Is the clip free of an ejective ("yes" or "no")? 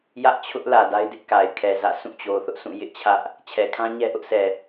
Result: yes